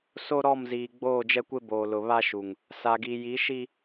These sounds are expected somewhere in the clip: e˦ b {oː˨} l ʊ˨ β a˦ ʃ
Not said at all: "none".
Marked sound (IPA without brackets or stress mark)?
oː˨